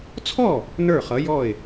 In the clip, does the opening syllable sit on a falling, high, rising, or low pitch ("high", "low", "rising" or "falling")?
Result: falling